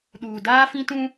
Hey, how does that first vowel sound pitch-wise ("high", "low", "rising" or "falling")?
low